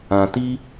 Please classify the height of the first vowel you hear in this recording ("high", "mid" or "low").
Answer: low